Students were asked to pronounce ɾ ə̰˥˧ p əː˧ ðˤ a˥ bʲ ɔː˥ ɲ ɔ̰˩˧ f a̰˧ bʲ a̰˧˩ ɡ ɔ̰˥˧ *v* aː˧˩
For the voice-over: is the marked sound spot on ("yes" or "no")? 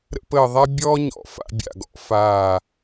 no